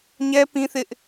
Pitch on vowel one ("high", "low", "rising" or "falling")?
high